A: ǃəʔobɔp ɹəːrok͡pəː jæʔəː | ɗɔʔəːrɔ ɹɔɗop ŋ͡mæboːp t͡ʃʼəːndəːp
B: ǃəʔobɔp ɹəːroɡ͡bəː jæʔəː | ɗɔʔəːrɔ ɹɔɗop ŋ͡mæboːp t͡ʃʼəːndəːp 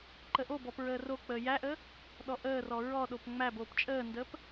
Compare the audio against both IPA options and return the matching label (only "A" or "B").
A